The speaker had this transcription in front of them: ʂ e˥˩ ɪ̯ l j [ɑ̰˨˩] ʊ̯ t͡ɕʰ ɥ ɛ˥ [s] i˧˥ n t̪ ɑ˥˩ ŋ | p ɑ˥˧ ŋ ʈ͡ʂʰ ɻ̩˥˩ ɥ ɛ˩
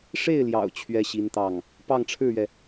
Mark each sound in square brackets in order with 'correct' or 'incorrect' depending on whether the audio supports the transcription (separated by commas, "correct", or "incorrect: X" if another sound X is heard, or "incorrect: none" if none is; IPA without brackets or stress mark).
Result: correct, incorrect: ɕ